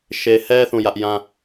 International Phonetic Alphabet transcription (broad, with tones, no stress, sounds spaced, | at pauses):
ʃ e˨ h ɛ˦ θ ũ˦˨ j ä˦ ʔ j ã˦